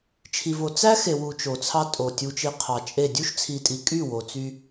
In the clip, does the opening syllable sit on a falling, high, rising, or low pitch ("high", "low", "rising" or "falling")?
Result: low